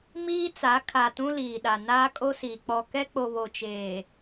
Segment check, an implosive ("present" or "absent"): present